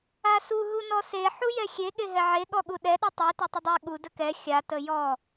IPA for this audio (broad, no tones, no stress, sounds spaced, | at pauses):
a s u ɦ u n ɔ s e ħ u j ɛ xʲ e ɠ e ɦ ɛ ʕ e ɠ ɔ ɠ u ɗ ɛ ɗ u tˤ e t e tˤ ə dˤ e ɠ u d ə k ɛ xʲ a t ə j ɔ